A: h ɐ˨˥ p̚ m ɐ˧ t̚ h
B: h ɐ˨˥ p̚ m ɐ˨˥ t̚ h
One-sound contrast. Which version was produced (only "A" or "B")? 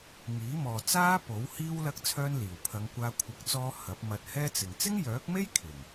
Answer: A